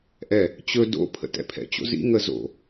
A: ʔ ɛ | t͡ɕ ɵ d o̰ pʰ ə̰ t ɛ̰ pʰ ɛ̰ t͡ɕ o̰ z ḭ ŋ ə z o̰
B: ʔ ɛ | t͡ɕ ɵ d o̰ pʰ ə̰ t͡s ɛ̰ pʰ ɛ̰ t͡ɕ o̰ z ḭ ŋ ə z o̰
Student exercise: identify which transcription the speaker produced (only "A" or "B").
A